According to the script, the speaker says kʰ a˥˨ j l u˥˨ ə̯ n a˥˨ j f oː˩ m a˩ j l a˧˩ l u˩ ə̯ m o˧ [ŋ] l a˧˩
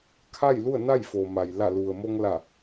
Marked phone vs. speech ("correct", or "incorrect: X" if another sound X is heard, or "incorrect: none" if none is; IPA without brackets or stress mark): correct